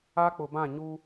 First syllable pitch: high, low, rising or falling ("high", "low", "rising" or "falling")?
high